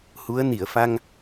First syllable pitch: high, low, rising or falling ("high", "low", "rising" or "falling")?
rising